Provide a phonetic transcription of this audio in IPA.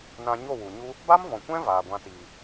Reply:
n ã˧ ɲ o˦˨ w u˨ ɲ u˦ | b a˦ m v ɔ̃˨ kʷ ɛ̃˦ v aː˨ ɡʷ ã˧ t iː˨

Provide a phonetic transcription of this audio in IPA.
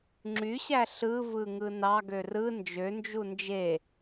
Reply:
ŋ͡ǁ y ɕ æ ɬ ɯ v ɯ ŋ ɯ n ɑ ɡ ø r ɯ n d͡ʒ ø n d͡ʒ u n d͡ʒ e

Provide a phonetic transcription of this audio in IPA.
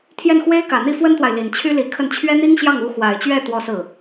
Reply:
t̪ʰ j ɛ˥˩ n x w e˥ ɪ̯ k ä˨˩ n̪ i˥˩ f w ə˥ n t̪ w a˨ ɪ̯ l i˨˩ n t͡ɕʰ y˥ l i˧˥ kʰ ə˥˩ n t͡ɕʰ ɥ ɛ˥ n̪ i˥ ŋ ɕ j ɑ˥˩ ŋ u˧˥ x w a˨˩ ɪ̯ t͡ɕ ɥ ɛ˥˩ t̪ w ɔ˥ s ɹ̩˥˩

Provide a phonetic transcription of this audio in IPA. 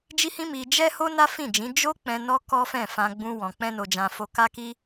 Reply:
d͡ʒ i˦ h ĩ˦ m i˧ d͡ʒ ɛ˦ h o˦ n a˦ f ĩ˦˨ d͡ʒ ĩ˨˦ d͡ʒ o˦ k͡p ɛ̃˧ n ɔ˦ k ɔ˦ f ɛ̃˦˨ f ã˧ ɡ͡b ũ˧ w ɔ̃˨ k͡p ɛ̃˧ n o˨ d͡ʒ ã˨ f o˧ k a˦ k i˦

